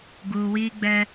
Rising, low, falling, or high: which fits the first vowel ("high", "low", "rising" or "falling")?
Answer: low